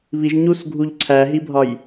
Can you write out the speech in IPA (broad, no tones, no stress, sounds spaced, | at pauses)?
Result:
β i ʒ ɲ u s ɡʱ u ʎ ǀʰ æ ɦ i bʱ ɒ j